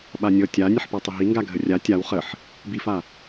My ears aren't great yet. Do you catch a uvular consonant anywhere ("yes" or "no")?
yes